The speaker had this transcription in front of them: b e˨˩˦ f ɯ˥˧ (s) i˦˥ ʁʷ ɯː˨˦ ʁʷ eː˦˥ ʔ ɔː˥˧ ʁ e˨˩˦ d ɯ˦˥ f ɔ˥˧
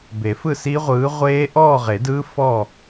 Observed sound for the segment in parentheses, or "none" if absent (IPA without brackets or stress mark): s